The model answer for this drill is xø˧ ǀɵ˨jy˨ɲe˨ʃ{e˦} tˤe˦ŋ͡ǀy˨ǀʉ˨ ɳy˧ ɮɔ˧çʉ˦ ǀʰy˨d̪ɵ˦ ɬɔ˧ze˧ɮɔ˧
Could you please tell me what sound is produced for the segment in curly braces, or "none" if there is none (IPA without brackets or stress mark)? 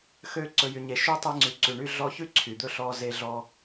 y˦